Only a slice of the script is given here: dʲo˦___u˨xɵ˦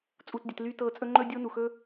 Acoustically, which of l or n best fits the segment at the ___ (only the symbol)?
n